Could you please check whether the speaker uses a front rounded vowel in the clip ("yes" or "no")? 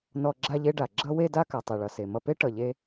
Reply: no